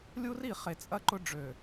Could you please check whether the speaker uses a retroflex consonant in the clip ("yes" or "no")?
yes